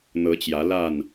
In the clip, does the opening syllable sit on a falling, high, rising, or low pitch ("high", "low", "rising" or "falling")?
rising